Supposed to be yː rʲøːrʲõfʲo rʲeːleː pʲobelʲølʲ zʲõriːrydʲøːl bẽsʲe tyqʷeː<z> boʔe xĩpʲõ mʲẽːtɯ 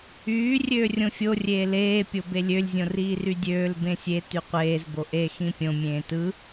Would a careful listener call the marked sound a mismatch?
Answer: no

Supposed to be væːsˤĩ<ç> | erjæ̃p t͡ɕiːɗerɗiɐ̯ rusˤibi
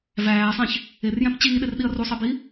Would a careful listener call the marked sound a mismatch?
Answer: no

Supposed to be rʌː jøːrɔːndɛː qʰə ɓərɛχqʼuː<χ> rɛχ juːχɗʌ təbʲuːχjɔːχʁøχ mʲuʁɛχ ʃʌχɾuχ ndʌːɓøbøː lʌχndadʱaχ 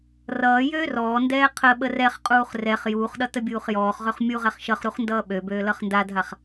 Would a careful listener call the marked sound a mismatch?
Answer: no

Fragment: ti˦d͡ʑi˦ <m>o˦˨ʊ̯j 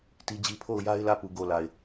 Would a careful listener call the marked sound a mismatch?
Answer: yes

